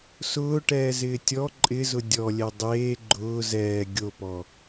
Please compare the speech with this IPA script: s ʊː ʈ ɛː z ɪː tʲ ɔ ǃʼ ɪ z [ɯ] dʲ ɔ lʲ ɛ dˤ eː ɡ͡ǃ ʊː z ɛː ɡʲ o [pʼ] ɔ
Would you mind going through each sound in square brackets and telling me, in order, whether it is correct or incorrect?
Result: incorrect: ʊ, incorrect: p

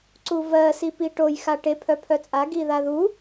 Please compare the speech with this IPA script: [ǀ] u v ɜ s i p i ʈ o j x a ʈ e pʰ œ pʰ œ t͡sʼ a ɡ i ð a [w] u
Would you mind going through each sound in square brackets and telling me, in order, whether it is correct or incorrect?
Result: correct, incorrect: ð

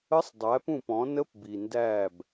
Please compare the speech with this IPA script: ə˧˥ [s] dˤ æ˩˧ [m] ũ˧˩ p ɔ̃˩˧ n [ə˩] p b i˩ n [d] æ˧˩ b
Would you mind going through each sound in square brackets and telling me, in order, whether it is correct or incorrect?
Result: incorrect: sˤ, incorrect: p, incorrect: ə˧˥, correct

